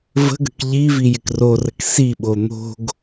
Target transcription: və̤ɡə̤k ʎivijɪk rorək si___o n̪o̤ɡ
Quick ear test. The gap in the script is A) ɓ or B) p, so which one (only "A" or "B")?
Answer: A